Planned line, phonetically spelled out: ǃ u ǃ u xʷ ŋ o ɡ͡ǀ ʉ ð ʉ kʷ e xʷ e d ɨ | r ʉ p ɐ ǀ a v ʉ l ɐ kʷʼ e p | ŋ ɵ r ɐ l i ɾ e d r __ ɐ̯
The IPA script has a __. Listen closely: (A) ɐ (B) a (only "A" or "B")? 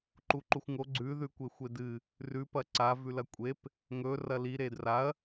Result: B